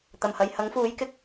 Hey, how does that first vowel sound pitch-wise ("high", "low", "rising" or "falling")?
low